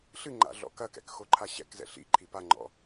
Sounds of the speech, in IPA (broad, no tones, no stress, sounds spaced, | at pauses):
ɬ ɨ ŋ͡ǃ a̰ ɮ ɔ̰ k ɐ k ɛ̰ k x o ǃʰ a ɕ ɛ̰ k z ɛ̰ ɬ ḭ ǃʰ i p a ŋ͡ǃ ɔ̰